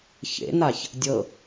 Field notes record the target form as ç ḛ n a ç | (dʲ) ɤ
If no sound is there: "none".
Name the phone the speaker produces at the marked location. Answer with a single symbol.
dʲ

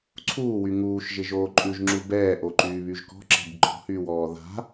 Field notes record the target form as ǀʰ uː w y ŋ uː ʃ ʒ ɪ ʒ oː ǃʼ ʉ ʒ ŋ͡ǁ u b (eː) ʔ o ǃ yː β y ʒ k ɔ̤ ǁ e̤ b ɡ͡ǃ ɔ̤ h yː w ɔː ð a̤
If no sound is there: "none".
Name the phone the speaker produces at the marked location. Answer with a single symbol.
ɛː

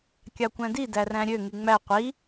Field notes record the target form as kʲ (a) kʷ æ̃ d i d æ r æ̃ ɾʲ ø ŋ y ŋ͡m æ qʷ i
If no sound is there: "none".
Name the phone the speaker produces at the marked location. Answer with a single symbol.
ɑ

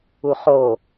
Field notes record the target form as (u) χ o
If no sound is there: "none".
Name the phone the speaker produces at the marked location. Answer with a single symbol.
u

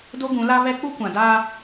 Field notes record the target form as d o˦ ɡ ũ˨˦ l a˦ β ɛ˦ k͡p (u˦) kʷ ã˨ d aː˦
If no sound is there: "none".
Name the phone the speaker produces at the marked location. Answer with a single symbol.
u˦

